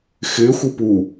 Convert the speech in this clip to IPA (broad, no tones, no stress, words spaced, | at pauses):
xɪː xʷɯpu